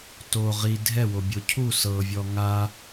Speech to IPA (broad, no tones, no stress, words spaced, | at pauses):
to ʁi dʱɛwobʲo cʰu sɤvʲɔ ŋa